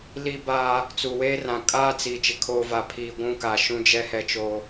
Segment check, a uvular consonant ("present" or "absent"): absent